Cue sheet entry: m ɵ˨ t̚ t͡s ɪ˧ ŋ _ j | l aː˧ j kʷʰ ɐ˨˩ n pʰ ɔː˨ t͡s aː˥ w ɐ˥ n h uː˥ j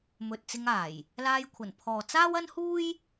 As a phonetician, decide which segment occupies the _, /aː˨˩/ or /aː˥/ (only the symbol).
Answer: aː˨˩